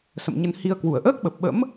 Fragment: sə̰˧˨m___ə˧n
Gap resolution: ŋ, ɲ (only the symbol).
ɲ